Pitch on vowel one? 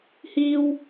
high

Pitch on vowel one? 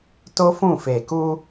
high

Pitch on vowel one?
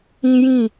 high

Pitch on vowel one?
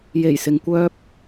low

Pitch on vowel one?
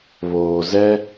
low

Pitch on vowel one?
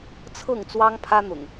falling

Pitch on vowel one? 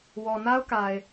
low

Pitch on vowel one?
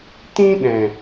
high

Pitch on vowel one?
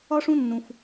high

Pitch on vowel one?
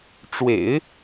low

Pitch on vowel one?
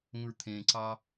low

